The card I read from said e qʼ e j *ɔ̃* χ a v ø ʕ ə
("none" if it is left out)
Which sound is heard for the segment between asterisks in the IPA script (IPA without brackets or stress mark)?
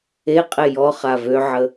ɔ